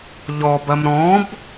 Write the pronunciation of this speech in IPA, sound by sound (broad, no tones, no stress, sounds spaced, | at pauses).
ʎ ɔ b ɐ m ɾ ɔ̃ b